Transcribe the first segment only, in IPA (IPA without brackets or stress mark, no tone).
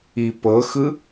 i